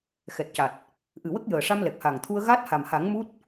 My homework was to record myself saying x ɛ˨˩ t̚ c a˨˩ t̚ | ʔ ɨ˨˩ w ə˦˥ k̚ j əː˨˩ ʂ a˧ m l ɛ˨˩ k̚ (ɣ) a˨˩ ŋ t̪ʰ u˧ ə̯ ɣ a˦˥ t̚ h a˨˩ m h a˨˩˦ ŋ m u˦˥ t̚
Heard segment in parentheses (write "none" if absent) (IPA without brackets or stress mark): h